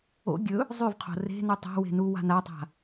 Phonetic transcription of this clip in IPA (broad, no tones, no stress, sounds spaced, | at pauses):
o̰ ɡʲ ɵ | zˤ y v qʰ o̤ r e̤ n u tˤ a̤ w e̤ n u w a̤ n a tˤ a̤